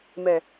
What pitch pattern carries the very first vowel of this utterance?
low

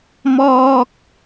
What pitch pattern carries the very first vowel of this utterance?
high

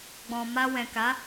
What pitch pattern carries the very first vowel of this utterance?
low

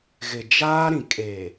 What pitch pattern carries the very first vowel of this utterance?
low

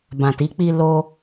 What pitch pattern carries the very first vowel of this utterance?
low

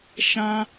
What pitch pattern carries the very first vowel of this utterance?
high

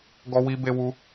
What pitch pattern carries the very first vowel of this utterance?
high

